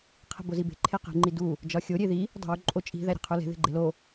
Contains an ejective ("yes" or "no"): yes